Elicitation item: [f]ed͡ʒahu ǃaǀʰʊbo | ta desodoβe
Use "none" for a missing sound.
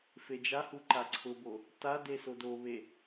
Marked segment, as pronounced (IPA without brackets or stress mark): f